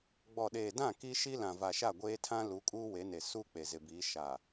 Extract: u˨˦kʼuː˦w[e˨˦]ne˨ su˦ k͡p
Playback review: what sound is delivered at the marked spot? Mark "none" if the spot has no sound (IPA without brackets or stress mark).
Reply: e˨˦